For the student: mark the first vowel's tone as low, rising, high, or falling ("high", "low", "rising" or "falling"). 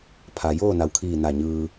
low